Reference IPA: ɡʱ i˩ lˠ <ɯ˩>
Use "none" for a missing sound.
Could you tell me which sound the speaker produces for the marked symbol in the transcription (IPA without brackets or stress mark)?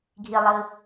ɯ˩